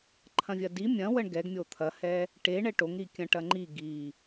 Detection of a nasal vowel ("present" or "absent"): present